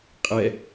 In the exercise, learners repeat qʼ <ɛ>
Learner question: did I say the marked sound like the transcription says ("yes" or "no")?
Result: yes